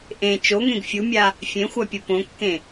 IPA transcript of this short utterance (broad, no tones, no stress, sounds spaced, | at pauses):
ʔ ẽ t͡ʃ o ŋ ẽ ɡ fʲ u mʲ a | fʲ ẽ xʷ a pʲ u p õ kː ẽ